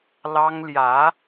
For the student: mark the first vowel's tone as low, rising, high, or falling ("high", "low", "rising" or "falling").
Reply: high